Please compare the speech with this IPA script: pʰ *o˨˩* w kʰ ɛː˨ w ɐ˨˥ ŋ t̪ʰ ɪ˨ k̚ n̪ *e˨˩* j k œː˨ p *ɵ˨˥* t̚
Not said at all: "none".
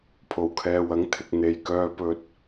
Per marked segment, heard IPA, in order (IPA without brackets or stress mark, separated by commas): o˨˩, e˨˩, ɵ˨